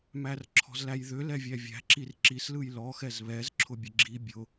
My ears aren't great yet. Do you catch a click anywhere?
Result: yes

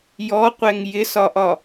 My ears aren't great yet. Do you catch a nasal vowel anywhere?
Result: no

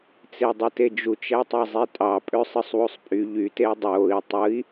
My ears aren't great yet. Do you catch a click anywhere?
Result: no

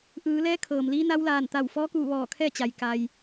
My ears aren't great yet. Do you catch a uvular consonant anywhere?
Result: no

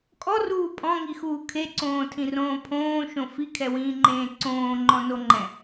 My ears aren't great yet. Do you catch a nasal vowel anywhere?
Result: yes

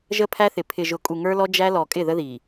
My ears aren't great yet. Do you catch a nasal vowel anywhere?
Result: no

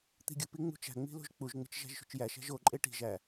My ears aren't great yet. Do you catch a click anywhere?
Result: yes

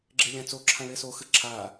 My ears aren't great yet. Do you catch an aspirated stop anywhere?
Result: yes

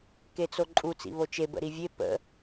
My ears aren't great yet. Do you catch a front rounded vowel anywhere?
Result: no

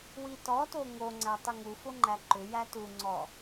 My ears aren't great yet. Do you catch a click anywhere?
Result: yes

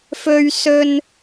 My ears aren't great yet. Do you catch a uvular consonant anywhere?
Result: no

